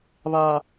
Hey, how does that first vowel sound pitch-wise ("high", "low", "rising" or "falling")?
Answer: low